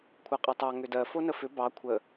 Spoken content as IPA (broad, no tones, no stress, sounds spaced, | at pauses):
kʷʰ a qʼ ɜ tˤ ɑ ŋ ʏ d ɜ f o n ə f ʏ b ɑ kʷʰ ə